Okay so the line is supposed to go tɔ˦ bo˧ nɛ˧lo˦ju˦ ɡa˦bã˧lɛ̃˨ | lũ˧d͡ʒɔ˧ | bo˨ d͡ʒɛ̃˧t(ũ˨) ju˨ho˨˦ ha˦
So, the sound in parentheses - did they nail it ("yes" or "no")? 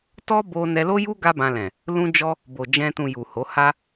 yes